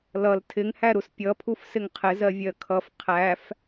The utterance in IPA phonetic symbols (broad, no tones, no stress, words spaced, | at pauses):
lʌl tʰɪŋhæ ɾuspʲʌpʰuf sɪŋqʰɪ zɜvʲɜkʰʌf qʰæf